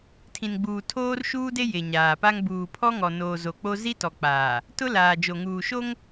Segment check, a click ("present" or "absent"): absent